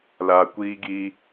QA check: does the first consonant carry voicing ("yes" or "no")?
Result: yes